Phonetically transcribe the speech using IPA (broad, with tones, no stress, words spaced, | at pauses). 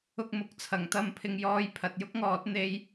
ʊ˥k̚mʊ˨˥k̚t͡sʰɐ˨˥ŋ t̪ɐ˧mpʰɪ˧ŋjɔː˧j pʰɐ˨t̚jʊ˥k̚ŋɔː˨˥t̚ n̪e˧j